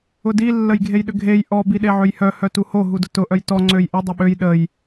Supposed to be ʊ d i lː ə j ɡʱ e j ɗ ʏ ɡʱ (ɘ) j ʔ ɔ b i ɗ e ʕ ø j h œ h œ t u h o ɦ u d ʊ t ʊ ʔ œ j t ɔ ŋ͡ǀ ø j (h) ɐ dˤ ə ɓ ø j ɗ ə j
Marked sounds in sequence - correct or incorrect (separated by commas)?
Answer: incorrect, incorrect